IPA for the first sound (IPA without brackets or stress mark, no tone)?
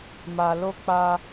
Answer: m